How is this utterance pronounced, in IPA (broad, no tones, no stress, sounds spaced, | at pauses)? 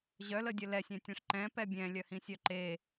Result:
ʑ œ l ə dʲ ə l ɛ sʲ ɛ̃ tʲ ɛ̃ ʂ ǃ ɛ̃ p ɛ bʲ ɛ̃ lʲ œ h ĩ sʲ œ ǃ e